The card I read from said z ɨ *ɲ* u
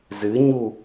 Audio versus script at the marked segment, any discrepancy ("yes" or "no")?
no